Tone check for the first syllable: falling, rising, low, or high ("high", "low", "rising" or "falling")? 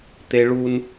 high